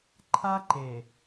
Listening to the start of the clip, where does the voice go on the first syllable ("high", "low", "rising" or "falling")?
high